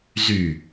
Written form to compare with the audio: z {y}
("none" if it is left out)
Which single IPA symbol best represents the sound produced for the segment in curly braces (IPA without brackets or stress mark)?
y